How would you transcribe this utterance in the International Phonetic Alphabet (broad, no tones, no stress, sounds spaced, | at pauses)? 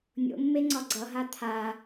nʲ o̰ mː e ŋ͡ǀ ɒ ɡ͡ǀ ʌ ɦ a t̪ʰ a